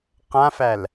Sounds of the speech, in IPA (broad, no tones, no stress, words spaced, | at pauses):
qãfæl